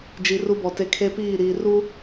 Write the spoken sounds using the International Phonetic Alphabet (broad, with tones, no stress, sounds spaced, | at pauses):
d͡ʒ i˨ r u˦ b ɔ˨ t e˦ kʰ e˦ p iː˦˨ ɾ iː˨ r u˦